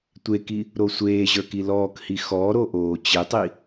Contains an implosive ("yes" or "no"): no